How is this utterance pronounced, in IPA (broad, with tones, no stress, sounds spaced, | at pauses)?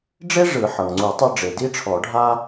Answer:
ɖ͡ʐ e˥ ʐ ɯ˨˩˦ ħ ɤ˩ ŋ ŋ͡ǀ u˨˩˦ tˤ ɤ˥ ɖ͡ʐ e˩ d i˥ ʈ͡ʂʰ ɔ˨˩˦ ɖʱ a˥